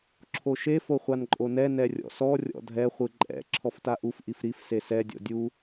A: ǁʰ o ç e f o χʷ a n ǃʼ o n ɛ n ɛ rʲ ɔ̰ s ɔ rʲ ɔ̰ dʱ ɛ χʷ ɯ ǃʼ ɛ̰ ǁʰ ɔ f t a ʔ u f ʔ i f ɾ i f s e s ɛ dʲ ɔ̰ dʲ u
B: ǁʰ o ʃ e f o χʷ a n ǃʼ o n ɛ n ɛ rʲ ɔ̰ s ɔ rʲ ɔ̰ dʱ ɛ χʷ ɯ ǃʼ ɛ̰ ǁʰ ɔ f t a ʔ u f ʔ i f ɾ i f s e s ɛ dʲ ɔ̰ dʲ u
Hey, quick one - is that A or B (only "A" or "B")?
B